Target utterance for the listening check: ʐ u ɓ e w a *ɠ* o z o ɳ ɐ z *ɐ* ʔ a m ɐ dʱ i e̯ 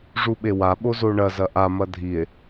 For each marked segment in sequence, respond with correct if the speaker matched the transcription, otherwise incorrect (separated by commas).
incorrect, correct